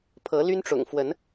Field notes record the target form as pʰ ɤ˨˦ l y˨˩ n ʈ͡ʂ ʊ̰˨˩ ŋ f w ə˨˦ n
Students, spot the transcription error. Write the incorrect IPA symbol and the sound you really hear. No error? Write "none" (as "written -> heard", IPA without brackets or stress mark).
y˨˩ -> y˦